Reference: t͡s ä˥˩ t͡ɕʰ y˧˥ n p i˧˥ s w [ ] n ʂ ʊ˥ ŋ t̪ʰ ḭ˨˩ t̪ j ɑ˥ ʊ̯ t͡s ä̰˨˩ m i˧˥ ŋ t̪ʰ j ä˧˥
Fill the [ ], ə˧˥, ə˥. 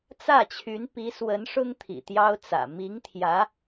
ə˧˥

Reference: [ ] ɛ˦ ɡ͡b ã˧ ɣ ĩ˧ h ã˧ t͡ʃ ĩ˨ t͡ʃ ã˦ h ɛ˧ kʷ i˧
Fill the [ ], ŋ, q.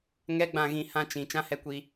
ŋ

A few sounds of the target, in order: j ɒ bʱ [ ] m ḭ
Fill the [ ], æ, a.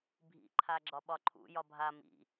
a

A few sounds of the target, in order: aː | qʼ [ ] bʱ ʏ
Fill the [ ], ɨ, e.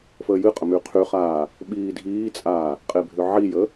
e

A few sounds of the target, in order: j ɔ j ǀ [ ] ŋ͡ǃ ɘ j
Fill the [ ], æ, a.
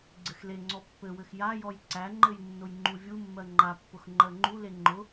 æ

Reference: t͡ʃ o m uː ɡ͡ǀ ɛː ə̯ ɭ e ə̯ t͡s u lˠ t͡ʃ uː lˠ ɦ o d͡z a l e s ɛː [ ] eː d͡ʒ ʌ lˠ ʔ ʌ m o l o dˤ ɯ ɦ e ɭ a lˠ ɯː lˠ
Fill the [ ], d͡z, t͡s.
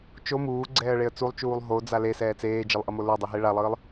t͡s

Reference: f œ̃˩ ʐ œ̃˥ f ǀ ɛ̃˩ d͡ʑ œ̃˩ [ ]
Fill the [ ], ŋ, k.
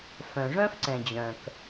k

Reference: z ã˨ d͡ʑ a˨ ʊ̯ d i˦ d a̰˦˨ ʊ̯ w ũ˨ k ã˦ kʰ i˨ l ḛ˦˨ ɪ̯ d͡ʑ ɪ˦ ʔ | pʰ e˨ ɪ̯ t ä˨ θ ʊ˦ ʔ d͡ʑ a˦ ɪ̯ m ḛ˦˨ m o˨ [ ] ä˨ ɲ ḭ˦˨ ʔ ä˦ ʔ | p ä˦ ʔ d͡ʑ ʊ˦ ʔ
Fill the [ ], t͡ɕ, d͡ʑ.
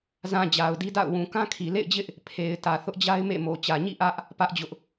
t͡ɕ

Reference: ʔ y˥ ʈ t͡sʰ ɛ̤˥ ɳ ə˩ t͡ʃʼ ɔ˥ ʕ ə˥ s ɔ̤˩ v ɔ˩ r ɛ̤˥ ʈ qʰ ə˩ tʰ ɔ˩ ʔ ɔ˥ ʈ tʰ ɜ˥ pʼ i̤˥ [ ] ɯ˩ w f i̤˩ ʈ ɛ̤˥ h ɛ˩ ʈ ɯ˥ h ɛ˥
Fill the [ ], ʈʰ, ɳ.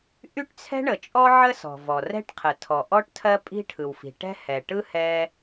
ʈʰ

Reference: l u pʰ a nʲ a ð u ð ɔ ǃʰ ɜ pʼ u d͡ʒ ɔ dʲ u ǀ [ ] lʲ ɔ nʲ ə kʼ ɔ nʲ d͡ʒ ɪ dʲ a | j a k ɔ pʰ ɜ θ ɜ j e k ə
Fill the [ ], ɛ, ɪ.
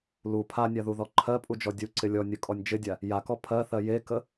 ɪ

